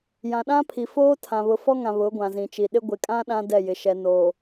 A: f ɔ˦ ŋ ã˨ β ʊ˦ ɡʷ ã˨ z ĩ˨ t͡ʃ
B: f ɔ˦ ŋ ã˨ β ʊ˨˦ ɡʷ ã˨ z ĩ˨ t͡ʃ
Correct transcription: B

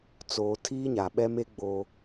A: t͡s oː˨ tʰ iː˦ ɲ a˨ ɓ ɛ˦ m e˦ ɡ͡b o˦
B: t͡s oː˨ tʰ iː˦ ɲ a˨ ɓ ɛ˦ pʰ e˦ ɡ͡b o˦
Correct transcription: A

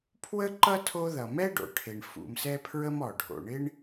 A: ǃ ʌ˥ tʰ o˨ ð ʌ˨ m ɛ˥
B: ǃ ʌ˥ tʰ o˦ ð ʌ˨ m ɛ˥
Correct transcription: B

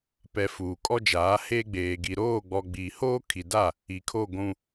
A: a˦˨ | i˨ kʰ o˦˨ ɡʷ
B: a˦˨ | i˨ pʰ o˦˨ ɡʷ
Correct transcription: A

